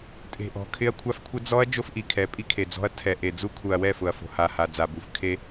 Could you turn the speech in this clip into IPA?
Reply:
tʼe̤˨ʔɔ̤˨ kʰɪ˦ɐ̯kʷʰa˦fkʷʰɪ˦ d͡zɔ˦ɐ̯ d͡ʒo˦fʔi˨kʰɛ˨˦ pʼi˦kʰe˨d͡zɔ̤˦ɐ̯ tʰɛ˨ ʔe˨ d͡zu˦kʰu˨ɐ̯ wɛ˦˨fʊ˨ɐ̯fo̤˨ ha˨ ha˨d͡za˨bu˨f kʰe˦

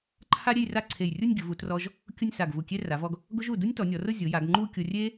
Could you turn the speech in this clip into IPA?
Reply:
ǃʰa˥ɾʲe˥˧jra˥˧ǀʰe˧˩j rʲu˥˧nʲɡʲʊ˩˧vu˩˧trɔ˧ʒ | kʲʊ˥˧nʲsa˧˩ɡ vu˧˩kʲe˥ ra˩˧vɔ˧ɡ | ɡʊ˥ʒu˧˩ du˥nʲtɔ˩˧nʲɔ˩˧rʊ˥˧ zʲʊ˩˧ja˩˧ɡ ŋ͡ǃu˥˧kʲʊ˧ rʲe˥

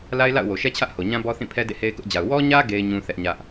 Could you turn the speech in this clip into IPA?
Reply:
la˦ɪ̯la̰˦˨ʊ̯wo˨ʃɛ˦ t͡ɕʰä˦ʔho˨ɲã˦ bɔ˦θĩ˦˨pʰɛ˦ dḛ˦˨he˦ɪ̯kʊ˦ʔd͡ʑa˨ʊ̯ wɔ˦ɲä˦ ɡe˦ɪ̯ ɲũ˦θɛ˦ʔ ɲä˦ʔ

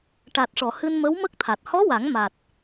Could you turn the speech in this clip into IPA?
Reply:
ʈa˨˩t̚ʂɔ˨˩˨hɨ˧n mə˧˥wmə˦˥k̚t̪ʰa˨˩t̚ hɔ˧˥wa˨˩˦ŋma˨˩t̚

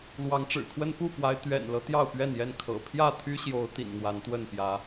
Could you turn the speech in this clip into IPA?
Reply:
lwɑ˨˦ŋʈ͡ʂɻ̩˨˩kʰwə˦n pu˥˨pwa˨˦ɪ̯ t̪ɥɛ̰˨˩nlɤ˦ t̪jɑ˥˨ʊ̯pɥɛ˥˨njɛ˥˨n kʰɤ̰˨˩ pʰjä˥˨t̪ʰy˦ɕjo˨˦ʊ̯ t̪ḭ˨˩nn̪wa˨˦nt̪wə˥˨npjä˨˦

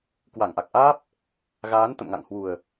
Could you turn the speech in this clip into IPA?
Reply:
kwa˧˩ŋʔa˨˩k̚ʔaː˦˥p̚ | ɣaː˨˦nt̪ə̰˧˨mŋa̰˧˨ŋhwu˨˩ə̯

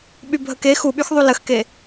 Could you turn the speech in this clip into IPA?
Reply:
ɓybʱəke xuɓyxðˤu ləxke

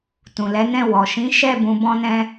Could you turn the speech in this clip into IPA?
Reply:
tũ˨lɛ˨˦nɛ̃˦˨ wɔ˨ ʃĩ˨˦ʃɛ˦˨ bũ˧bɔ̃˦nɛ̃˦

